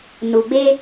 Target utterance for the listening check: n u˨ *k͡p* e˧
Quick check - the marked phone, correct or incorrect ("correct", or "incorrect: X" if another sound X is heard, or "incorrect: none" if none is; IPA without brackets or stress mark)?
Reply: incorrect: ɡ͡b